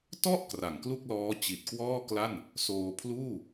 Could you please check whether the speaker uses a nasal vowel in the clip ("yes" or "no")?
no